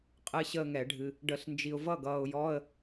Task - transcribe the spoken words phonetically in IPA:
qʼ ɨ˥˧ ɕ əː˥˧ ŋ ɛ˨˩˦ ɖʱ ɨ˨ | ɖ ə˨˩˦ ɬ n d͡ʒ i˨ ʊ̯ v ʌ˥˩ ɡ ʌː˨ ʊ̯ j ɔ˧˥˧ ə̯

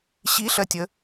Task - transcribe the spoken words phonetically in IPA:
ɕ i ɬ ɜ tʲ ə

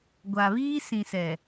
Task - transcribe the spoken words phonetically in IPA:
ɡʷ a˨ β iː˦ s ĩ˨ s ɛ˨

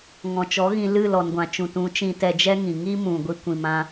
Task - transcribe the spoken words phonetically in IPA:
ŋ ɔ̃˨ t͡ʃ ɔ˨˦ ɣ ĩ˧ l ɨ˦˨ l ɔ˨ n ɡʷ ã˨ t͡ʃ ũ˨ t ũ˨˦ t͡ʃ ĩ˧ t ɛ˧ d͡ʒ ɛ˦ ŋ ĩ˨ ŋ i˦ m ũ˨ ɡʷ i˦ kʷ ĩ˧ m ã˦

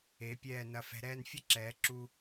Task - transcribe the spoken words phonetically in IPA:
e˩˧ pʲ ɛː˧˩ n ɐ˧˩ f ɛ̤˧ ɾ ɛː˥˧ n fʲ ɐ˥ ǁ ɛː˩˧ ǁ u˧

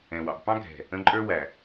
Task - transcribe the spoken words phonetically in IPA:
ɛ̃˨ w ɑ̰˨ b p ɑ̃˦ ɡʱ ɛ̤˨ | ə̃˦ ǃʼ ə˞˦ w æ˨

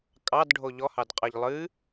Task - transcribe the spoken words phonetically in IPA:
kʼ ɑ d ɖʱ o ʎ ɔ h ɑ d qʼ ɑ ʎ lˠ ɨ

